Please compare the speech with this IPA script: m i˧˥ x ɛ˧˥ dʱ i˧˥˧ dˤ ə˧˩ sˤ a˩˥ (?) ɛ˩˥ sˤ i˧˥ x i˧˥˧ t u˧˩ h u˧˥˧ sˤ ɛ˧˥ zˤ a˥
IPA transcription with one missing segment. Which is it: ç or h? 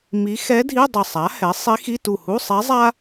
h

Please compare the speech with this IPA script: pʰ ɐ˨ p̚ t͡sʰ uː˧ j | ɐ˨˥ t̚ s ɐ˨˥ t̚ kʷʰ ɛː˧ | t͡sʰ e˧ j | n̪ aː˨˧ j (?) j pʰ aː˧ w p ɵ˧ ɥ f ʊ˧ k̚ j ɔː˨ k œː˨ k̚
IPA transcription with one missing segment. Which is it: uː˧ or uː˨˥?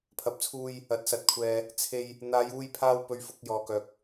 uː˧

